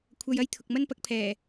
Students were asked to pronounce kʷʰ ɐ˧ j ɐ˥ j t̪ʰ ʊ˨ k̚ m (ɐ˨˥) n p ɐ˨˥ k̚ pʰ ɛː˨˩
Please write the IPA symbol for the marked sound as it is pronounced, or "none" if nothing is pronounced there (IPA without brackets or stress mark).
ɐ˥